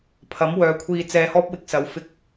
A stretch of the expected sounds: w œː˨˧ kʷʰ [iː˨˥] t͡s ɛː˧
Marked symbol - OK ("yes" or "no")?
no